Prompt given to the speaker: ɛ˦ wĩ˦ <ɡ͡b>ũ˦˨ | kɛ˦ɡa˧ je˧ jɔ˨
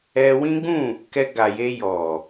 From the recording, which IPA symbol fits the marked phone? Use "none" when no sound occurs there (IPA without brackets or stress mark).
ɡ͡b